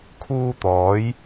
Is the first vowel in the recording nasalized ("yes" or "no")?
no